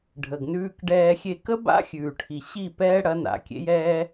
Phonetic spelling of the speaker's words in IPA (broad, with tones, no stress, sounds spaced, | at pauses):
ɖʱ ə˨ ɡ n ʉː˧ k ɖ ɛː˧ xʲ e˧ k ə˦ b a̰˦ xʲ ʉː˨ ʈʰ i˨ ɕ i˦˨ p ɛː˦ ɽ ɐ˨˦ n a̰˨˦ kʲ ḛ˦ j ɛː˦